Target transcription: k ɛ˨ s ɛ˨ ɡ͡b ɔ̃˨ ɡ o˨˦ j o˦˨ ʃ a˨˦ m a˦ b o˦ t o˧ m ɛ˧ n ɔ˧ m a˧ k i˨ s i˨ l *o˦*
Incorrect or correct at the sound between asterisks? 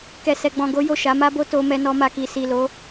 incorrect: o˨˦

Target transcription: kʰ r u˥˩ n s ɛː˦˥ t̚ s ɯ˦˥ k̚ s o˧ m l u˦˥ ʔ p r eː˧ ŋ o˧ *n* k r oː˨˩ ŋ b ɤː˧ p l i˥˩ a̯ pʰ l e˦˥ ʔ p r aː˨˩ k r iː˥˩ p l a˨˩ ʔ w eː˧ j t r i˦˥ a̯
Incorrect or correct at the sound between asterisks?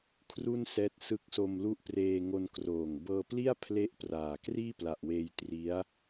correct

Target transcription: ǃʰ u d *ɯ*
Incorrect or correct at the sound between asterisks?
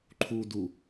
incorrect: u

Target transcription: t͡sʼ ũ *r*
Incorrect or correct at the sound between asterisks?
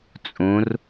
correct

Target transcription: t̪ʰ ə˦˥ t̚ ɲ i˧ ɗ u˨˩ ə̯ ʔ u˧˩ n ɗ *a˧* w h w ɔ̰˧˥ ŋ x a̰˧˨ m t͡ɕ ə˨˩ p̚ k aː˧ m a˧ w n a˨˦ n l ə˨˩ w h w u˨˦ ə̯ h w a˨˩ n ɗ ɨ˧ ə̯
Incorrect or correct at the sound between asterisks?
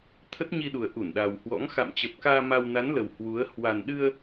incorrect: a˨˩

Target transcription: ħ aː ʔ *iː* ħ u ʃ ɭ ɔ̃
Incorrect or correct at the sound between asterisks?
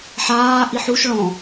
incorrect: i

